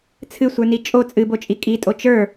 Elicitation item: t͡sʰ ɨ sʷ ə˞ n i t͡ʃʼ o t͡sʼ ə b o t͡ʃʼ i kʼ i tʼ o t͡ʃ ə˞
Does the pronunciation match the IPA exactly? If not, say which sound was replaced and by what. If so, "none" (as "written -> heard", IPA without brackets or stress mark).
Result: ə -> ɨ